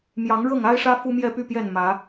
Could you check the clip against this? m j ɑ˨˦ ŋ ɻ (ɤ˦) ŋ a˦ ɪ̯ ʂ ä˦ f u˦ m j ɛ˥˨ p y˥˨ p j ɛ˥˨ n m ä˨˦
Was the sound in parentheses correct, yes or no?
no